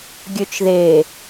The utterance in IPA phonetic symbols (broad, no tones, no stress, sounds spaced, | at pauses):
ɡʲ ø t͡ʃ ð e